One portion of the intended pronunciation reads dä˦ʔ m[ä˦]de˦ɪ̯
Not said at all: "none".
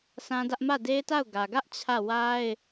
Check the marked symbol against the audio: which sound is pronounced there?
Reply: ä˦˨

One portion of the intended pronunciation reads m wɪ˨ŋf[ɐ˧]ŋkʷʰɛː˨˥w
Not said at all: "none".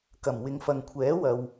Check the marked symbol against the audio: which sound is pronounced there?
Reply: ɐ˨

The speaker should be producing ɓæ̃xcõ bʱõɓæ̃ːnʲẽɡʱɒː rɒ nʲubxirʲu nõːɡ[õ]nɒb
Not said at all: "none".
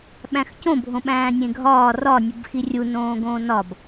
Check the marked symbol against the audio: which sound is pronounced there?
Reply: õː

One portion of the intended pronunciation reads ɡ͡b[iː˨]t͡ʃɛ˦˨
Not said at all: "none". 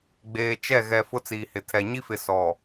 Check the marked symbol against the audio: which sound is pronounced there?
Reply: eː˨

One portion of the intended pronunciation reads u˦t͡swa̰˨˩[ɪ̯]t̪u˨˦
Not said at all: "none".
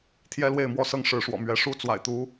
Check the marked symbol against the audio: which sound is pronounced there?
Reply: ɪ̯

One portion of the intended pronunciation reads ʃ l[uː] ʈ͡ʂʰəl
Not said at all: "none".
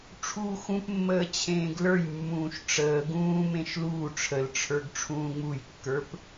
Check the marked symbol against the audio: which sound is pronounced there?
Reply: uː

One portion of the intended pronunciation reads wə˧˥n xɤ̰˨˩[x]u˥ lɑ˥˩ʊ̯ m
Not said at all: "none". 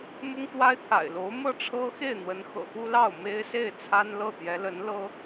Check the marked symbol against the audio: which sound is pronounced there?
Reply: x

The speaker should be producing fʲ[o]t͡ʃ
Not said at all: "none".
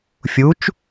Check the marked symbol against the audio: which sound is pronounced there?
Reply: u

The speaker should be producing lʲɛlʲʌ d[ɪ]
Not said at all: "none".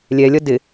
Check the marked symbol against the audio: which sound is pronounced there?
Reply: ɪ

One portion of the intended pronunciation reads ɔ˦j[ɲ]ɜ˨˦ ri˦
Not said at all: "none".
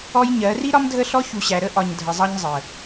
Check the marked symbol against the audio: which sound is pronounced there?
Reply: ɲ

